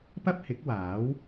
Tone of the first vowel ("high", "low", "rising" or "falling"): high